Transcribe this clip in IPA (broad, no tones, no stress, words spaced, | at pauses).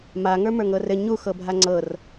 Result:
ma ŋə˞mə˞ŋɤrɘ ɲu xɤbʱaŋ͡ǀɤr